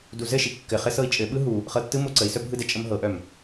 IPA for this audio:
duzɘʃi kːɘ χɘsɤi̯t͡ʃʼɘɓɯ ɦu | χɤtːɯmo ǀəi̯sœ bʱɯdɛ t͡ʃʼəmɦɤʔœm

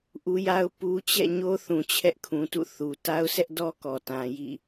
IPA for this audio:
ʔu˦ja˦ʊ̯ pu˦ t͡ɕɛ̰˦˨ɲo˦θũ˨ t͡ɕʰɛ˦ʔkʰũ˨tṵ˦˨ θu˨ ta˦ʊ̯sɛ˦ʔdɔ˦ kɔ˨tã˨jḭ˦˨

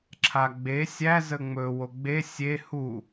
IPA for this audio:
ǁʰaɡ͡be sʲæ zəŋ͡mɵ woɡ͡be sʲe hu

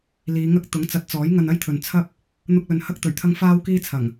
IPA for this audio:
liː˨˧ŋɐ˥k̚ t̪ʊ˨˥ŋt͡sɐ˨˥t̚t͡sɔː˨˥j ŋɐ˧nɐ˥jt̪ʰɵ˨n t͡sʰɐ˥p̚ | n̪ʊ˧k̚lɵ˨n hɐ˥k̚t̪ɵ˨˩ɥt̪ʰɐ˥ŋ faː˥wkiː˥t͡sʰɐ˨˩ŋ

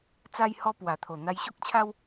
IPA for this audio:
t͡sa˧jhɔ˧pwa˨˩t̪ʰo˨˩ n̪a˧jɕo˦k̚t͡ɕʰa˦w

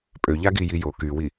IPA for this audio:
pʼøʎaɡiji jo kywi

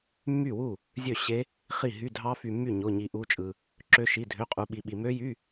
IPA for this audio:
mːy˥˩wu˥˩ | zʲø˥˩ ɕe˦˥ | χi˥˩ɦy˧˥˧ dʱɑ˦˥fy˧mːy˥˩ ɲo˧˥˧ɲi˧ʔu˦˥t͡ʃʼɯ˧ | ǁø˦˥ʃi˧˥˧ dʱø˧˥˧qʼu˧ɓi˧ɓi˧ mø˦˥jy˧˥˧

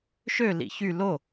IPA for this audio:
ʃø lḭçy lo

